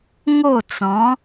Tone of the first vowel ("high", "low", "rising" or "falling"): falling